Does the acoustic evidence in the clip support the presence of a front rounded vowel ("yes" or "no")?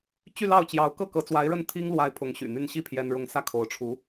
yes